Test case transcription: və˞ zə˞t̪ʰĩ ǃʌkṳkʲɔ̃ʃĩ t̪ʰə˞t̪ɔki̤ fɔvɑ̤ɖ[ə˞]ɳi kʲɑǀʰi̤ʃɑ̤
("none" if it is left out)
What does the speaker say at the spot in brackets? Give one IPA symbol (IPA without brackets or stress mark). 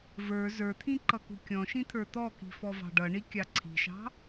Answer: ʌ